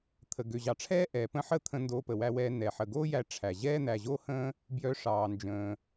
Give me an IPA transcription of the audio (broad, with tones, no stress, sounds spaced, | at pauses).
t̪ʰ ə˩ ɡ ø˩ ʑ ɑ˩ ʈ͡ʂʰ ɛː˥ ʔ ɛː˩ p ə̃˥ ħ ə˥ t̪ʰ ə̃˧ n d oː˧ p ə˩ w æ˧ w ɛː˧ n ɛ˩ ħ ə˩ ɡ oː˥ j æ˧ ʈ͡ʂʰ æ˩ ʑ ɛː˥ n̪ æ˩ ʑ oː˥ h ə̃ː˥ | b j œ˧ ʂ ɑː˩ n d͡ʒ ə̃ː˩